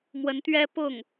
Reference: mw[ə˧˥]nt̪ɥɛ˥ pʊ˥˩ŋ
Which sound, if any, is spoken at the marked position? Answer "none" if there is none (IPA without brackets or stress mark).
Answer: ə˧˥